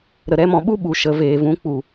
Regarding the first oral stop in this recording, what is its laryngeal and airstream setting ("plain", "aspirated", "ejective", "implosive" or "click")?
implosive